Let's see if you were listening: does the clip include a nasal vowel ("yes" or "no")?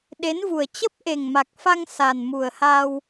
no